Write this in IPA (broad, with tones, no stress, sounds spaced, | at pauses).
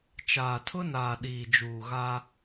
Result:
t͡ʃ aː˨ tʰ ʊ˦ n aː˨ ɗ iː˨ d͡ʒ uː˨ ɣ a˦